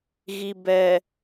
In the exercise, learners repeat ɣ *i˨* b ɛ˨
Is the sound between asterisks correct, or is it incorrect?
correct